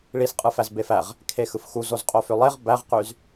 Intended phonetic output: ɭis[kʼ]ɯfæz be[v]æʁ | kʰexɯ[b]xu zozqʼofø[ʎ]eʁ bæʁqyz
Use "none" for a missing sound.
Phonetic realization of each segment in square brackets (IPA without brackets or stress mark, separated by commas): qʼ, f, f, lˠ